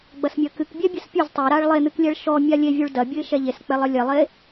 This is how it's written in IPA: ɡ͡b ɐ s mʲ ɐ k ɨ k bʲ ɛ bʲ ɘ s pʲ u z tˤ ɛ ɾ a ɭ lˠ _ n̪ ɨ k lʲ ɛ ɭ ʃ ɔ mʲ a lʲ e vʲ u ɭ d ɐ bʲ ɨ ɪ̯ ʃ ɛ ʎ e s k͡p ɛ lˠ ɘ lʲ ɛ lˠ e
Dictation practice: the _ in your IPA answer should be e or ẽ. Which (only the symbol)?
e